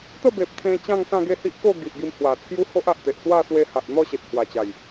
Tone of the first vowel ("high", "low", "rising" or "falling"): falling